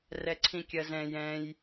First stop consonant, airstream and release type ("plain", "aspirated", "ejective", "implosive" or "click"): click